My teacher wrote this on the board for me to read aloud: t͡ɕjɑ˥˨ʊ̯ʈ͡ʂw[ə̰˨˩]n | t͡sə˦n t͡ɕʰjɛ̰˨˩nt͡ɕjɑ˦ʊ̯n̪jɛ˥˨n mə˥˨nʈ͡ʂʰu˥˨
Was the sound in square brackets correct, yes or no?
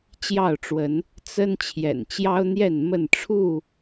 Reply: no